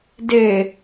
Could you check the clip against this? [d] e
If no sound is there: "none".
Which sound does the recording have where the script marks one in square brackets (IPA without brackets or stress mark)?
d